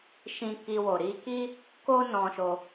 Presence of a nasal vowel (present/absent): present